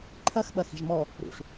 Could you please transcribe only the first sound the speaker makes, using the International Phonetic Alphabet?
ǃʰ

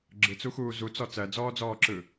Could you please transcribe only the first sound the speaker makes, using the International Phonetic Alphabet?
ɡ͡ǁ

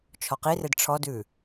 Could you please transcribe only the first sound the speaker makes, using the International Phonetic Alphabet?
t͡ʃʰ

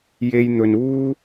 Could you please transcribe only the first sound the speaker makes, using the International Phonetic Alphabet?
j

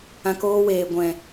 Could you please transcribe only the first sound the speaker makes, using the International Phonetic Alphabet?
ã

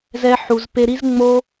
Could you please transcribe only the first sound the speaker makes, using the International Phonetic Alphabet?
z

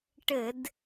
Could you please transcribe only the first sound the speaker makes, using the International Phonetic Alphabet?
ʈ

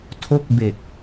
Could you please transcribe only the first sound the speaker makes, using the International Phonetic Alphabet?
tʰ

